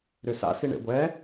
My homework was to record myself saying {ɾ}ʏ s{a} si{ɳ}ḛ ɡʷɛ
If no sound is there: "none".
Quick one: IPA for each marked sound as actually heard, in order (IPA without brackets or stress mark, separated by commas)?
ɾ, a̰, ɳ